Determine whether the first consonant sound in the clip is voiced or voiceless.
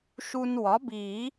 voiceless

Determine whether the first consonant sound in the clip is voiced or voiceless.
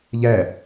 voiced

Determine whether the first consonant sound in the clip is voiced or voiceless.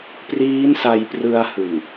voiceless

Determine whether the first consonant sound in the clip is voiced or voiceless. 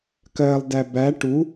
voiceless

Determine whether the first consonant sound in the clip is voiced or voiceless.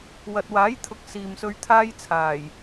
voiced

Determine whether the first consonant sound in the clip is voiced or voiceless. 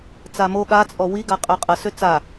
voiceless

